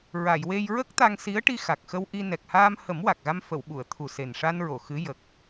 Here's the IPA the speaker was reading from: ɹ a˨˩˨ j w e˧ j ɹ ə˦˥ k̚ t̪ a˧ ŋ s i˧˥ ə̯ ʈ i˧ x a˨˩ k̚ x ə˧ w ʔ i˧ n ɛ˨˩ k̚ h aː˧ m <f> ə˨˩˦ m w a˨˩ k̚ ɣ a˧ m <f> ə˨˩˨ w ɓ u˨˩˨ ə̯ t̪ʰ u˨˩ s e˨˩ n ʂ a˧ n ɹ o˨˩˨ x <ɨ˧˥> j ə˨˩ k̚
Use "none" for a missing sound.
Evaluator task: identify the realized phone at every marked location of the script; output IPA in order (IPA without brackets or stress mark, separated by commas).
h, f, ɨ˧˥